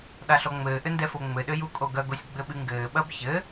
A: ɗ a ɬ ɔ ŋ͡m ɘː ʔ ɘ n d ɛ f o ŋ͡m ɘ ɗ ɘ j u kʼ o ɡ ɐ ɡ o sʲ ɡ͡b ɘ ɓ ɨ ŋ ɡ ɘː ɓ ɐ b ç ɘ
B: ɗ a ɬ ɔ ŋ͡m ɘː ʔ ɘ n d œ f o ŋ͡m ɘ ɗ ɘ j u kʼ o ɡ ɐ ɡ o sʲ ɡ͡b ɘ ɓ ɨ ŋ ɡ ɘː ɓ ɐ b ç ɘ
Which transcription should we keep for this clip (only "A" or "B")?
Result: A